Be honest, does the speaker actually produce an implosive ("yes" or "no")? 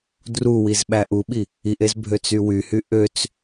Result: yes